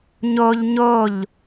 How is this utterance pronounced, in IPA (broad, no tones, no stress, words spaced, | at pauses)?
ɲoʎ ɲoʎ